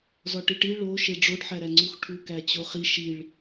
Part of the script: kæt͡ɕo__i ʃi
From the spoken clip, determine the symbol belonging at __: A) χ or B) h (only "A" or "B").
A